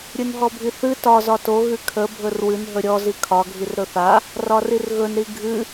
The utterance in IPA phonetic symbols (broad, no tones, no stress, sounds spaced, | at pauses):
ɾʲ ɨ n ɦ ɔ bʱ i θ ɨ t ɒ z ɒ t o ɣ ɨ kʰ ə bʱ ɵ r w ɨ n ɦ ɵ ɾʲ ɔ z i kʰ ɒ ɡʱ i r ɾ ɵ θ a | r ɒ r i r ɣ ɵ n ɾ i ɡʱ ɨ